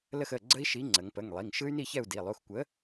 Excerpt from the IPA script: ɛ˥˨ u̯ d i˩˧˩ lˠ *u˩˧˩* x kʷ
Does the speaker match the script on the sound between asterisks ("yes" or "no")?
yes